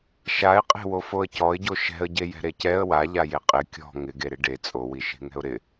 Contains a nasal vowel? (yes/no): no